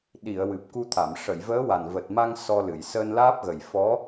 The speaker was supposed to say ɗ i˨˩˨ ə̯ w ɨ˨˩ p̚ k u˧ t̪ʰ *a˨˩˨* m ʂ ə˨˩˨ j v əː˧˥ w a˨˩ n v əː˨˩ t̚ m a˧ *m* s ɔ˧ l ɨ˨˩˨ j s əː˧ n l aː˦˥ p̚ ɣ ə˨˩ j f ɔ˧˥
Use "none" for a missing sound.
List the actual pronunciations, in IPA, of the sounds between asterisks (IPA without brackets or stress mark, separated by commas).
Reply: a˨˩˨, ŋ